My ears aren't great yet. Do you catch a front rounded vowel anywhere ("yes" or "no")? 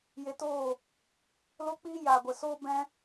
no